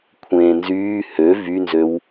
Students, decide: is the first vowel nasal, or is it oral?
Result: nasal